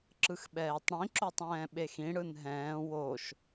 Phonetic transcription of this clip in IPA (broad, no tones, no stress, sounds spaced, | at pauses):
ǁ ɯ x ɓ ɛː tˤ ɽ ĩ ǁ o tˤ ɛ̃ː ɓ e x ĩ ɽ ɯ n ɦ ɛ̃ː w o ʃ